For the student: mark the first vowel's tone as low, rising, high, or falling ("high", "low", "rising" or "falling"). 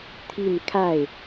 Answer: falling